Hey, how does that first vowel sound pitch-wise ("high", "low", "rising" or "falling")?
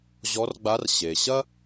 rising